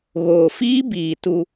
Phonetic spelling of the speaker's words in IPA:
ɣ oː˨ f iː˦ b iː˨ t u˧

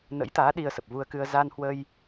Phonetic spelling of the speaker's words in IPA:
n ə̰˧˥ j t̪ aː˨˦ ɗ i˧ ə̯ s ə˨˩ p̚ v u˧ ə̯ k ɨ˧ ə̯ z aː˧ n h w ə˧ j

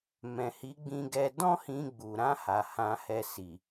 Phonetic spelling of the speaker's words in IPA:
m ɛ̃˨ h i˨˦ ɡ͡b ĩ˧ ɡ ɛ˧ d ɔ̃˦ h ĩ˧ ɡ͡b u˨ ɾ ã˧ h a˨ h ã˧ h ɛ˧ s i˨

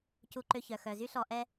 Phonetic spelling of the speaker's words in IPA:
c u˧ ǃ ø˧ ç œ˩ x œ˩ z y˥ ɬ ɔ˧ ʔ ɛ˥

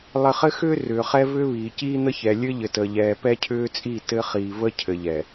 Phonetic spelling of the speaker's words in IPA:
lˠ ɘ˨ χ ɘ˦ x ʏː˦ r ʏː˨ χ ɛ˦ v ʏː˦ β iː˨ c iː˦ n̪ ə˦ ç ɛ˨ lʲ ɘ˦ ʎ ɘ˨ t əː˨ ʎ ɛː˨ p ɛ˦ cʰ ʏː˦ t͡sʼ i˦˨ t ɘ˦ χ iː˨ v ə˦ cʰ ɘ˨ ʎ ɛ˨

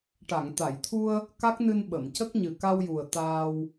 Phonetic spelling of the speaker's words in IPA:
ʈ a˨˩˨ ŋ t̪ a˨˩˨ j t̪ʰ u˧ ə̯ | k a˦˥ k̚ n ɨ˧ n ɓ ə˨˩˨ m c ə˦˥ k̚ ɲ ɨ˨˩ k a˧ w j u˨˩ ə̯ t̪ aː˧ w

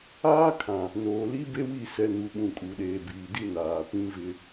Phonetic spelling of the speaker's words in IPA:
aː˦ kʰ ã˨ | n oː˨ l i˦ b e˦ w i˦˨ s ɛ˨ n u˨ ɓ ũ˨ kʼ u˨ ɗ eː˨ b iː˨ d i˦ n aː˨ p ĩ˦ v ɪ˦

